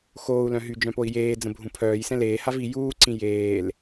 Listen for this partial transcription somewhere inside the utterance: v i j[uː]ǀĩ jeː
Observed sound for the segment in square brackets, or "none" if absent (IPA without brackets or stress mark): uː